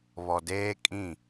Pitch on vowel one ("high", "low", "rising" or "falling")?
low